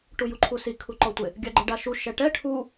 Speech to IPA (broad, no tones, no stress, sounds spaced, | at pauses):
ʈ u j u ǃʰ u s i kʰ u ǃ ɔ tʷ ɪ | ɡʲ a ɡ͡ǃ ɪ ɖ a ʃ u ʃ ɛ ʈ ɛ ʈʰ u